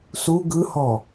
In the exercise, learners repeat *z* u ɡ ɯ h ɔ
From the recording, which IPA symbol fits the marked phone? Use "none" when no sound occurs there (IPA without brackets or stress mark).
s